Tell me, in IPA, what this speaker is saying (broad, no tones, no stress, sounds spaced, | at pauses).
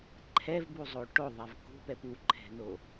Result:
ǃʰ ɛ v b u zˤ o ʈ o ðˤ ɛ v k ṳ p ɛ p u ǃʰ ɛ̤ n o